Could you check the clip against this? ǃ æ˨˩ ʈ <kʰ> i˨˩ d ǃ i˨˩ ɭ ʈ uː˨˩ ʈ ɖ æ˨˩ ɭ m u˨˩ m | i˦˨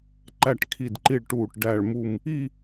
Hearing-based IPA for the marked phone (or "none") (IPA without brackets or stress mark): kʰ